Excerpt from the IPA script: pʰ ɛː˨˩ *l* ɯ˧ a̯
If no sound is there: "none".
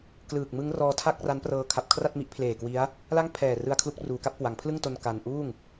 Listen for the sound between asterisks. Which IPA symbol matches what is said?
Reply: r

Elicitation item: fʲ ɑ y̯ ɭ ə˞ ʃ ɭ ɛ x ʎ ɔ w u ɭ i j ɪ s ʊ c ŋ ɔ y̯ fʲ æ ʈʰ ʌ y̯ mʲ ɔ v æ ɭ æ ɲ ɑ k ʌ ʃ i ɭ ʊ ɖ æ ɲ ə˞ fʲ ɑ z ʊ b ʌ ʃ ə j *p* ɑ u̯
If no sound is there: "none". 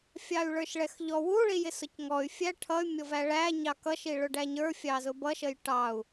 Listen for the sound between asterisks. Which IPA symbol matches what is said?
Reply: ʈ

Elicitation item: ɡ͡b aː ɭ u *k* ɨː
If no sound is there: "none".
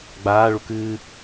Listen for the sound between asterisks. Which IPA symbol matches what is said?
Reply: k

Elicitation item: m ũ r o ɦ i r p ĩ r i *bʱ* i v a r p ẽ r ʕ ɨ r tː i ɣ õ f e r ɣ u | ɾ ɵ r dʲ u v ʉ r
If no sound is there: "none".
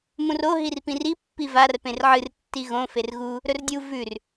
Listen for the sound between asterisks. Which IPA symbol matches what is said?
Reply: pː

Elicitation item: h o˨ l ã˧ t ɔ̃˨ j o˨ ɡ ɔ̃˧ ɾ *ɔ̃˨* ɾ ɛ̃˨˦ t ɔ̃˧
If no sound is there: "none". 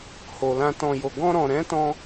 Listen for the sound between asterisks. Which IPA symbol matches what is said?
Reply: ɔ̃˨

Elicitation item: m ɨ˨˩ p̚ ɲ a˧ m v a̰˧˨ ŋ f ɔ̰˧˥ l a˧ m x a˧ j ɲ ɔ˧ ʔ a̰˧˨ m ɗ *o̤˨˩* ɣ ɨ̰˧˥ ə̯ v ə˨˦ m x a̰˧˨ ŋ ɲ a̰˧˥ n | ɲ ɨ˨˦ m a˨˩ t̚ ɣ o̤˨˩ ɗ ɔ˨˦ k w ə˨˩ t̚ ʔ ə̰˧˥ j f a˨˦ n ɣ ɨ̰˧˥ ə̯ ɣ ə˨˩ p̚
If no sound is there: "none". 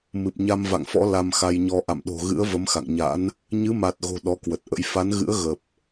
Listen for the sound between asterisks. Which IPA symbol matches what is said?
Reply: o̤˨˩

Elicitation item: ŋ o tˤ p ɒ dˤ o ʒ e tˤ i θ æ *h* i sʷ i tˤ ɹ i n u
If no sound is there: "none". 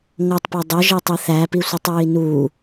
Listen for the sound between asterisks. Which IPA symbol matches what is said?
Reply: p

